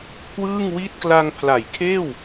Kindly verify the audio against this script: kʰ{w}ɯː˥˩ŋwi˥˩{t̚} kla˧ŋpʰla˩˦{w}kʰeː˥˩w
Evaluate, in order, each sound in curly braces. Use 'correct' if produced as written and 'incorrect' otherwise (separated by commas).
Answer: correct, correct, incorrect